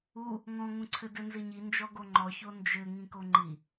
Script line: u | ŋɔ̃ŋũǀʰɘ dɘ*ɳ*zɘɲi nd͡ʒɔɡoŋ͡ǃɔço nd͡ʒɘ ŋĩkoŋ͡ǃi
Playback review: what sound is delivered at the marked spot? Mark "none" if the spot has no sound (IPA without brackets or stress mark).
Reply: n